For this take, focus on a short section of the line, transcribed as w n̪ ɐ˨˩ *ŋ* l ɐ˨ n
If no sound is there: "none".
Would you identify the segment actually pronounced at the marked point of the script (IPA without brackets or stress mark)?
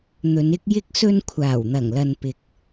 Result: ŋ